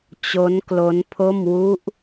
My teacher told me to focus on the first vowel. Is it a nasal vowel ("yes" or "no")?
no